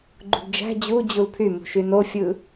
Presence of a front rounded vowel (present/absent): present